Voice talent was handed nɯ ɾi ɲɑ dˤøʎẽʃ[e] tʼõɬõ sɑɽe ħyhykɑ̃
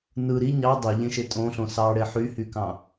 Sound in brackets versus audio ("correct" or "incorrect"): correct